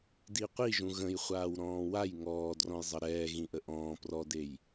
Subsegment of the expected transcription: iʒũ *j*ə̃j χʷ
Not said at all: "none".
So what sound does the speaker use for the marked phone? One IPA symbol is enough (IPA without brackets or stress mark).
ɣ